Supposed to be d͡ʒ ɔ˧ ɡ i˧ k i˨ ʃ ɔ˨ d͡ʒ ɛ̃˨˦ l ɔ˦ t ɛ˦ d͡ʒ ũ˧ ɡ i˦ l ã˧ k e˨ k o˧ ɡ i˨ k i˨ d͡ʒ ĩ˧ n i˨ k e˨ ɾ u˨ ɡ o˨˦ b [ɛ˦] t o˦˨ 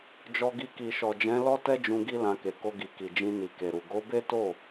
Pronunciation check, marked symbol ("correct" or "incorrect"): incorrect